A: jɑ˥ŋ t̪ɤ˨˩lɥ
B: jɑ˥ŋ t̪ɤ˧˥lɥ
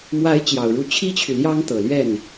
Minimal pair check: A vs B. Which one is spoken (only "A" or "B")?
A